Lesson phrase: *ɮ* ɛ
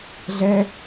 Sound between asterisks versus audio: correct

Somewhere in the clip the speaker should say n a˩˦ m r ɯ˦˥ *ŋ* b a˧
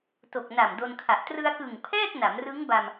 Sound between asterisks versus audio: correct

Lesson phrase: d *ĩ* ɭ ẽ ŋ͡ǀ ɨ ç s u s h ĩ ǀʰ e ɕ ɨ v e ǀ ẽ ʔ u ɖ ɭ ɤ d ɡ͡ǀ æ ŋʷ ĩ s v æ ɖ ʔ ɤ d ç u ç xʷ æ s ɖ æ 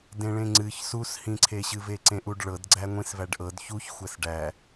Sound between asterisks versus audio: incorrect: ẽ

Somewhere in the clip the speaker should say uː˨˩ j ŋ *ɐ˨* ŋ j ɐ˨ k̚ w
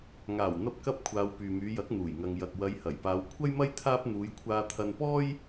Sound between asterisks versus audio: correct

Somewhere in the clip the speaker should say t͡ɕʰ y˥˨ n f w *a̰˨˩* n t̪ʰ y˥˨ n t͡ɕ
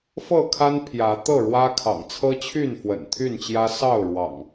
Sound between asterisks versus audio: incorrect: ə̰˨˩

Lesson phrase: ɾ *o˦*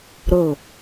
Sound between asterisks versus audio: incorrect: o˦˨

